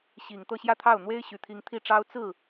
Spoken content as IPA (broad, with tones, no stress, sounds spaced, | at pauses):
ɕ i˨˩ ŋ t̪ ɤ˥˧ ɕ j ä˥˧ t̪ʰ ɑ˥˩ ʊ̯ n̪ w e˥ ɪ̯ ɕ y˨˩ t̪ʰ i˧˥ ŋ t̪ʰ i˥˩ ʈ͡ʂ ɑ˥ ʊ̯ t͡s ɹ̩˥˩